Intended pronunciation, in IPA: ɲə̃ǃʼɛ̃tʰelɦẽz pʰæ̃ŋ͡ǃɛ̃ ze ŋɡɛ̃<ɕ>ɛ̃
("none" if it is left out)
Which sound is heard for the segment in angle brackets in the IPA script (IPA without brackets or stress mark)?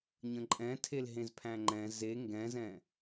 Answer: z